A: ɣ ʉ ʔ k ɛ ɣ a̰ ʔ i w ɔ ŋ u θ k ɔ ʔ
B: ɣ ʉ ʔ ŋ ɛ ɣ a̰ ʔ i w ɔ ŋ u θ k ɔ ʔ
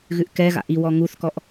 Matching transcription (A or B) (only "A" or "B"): A